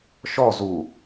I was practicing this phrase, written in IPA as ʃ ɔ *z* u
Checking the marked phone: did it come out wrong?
no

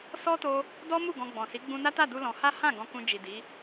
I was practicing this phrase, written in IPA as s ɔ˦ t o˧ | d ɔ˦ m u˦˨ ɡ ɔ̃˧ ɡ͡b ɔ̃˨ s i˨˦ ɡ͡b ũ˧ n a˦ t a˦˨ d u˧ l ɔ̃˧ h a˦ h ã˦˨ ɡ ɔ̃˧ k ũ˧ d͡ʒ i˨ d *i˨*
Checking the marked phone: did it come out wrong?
yes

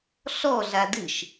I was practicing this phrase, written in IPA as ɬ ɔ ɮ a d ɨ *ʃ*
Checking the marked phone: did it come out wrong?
no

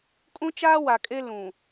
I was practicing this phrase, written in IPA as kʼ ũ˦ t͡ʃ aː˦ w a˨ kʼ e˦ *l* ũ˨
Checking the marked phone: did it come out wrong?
no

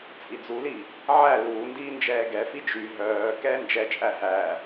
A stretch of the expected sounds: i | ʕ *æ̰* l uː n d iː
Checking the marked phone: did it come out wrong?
yes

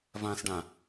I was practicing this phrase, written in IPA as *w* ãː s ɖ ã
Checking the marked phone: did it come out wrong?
yes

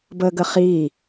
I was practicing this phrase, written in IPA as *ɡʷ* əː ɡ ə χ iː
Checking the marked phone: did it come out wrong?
yes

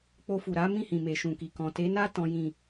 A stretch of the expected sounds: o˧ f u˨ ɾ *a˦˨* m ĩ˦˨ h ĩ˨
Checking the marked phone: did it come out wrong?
yes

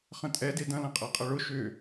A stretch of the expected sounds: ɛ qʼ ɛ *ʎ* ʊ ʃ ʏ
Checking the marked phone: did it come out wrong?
yes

